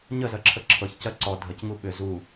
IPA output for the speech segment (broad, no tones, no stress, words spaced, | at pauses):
ɲəzɜǁʰə ǁʰɤçcɜ ǀɔ dʱəcŋu ɓʏ zu